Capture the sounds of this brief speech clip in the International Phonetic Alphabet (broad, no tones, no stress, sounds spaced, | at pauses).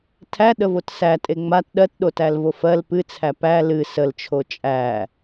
tʰ æ ɗ ə v o t s æ tʼ e ŋ͡m a t ɗ ɜ t ɗ o t æ l v o f ɜ l p ɨ t͡sʰ æ p æ l ɨ s ə l t͡ʃʰ o t͡ʃʼ æ